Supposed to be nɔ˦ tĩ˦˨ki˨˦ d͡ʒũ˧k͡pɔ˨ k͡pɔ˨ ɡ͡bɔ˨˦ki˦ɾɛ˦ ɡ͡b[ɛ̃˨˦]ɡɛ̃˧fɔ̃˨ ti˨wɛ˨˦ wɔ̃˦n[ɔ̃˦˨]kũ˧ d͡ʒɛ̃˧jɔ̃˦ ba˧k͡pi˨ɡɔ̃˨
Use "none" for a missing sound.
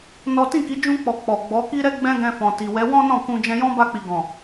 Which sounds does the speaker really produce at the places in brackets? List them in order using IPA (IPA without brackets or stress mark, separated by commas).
ɛ̃˦, ɔ̃˦˨